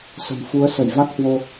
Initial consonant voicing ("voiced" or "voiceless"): voiceless